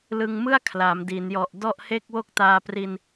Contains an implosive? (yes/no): no